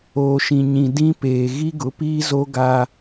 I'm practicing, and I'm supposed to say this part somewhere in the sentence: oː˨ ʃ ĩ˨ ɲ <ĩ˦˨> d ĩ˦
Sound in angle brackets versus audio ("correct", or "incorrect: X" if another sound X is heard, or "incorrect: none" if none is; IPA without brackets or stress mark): incorrect: ĩ˨